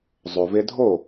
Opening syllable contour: low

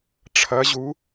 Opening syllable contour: rising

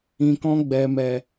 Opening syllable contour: low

